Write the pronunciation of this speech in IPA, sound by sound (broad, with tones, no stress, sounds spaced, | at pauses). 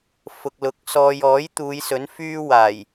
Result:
f ʊ˨ k̚ l ʊ˨ k̚ s ɔː˨ j ɔː˨˥ j t̪ uː˨˧ j s ɵ˨˥ n f yː˥ w aː˨˩ j